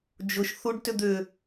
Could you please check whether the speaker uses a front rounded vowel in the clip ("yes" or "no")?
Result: yes